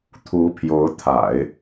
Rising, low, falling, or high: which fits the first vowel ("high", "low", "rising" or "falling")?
rising